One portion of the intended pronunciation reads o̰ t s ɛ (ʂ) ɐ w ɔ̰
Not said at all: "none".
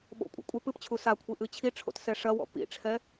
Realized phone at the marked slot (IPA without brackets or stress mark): ʂ